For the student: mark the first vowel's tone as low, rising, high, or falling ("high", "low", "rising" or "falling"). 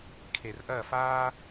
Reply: low